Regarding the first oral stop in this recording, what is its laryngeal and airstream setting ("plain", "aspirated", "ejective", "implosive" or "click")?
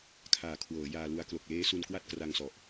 aspirated